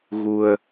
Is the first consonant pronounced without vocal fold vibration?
no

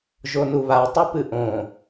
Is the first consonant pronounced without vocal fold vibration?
no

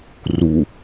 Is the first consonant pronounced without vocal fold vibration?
no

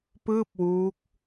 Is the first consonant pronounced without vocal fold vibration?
yes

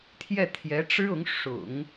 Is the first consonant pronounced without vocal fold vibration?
yes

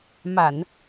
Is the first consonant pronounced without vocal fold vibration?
no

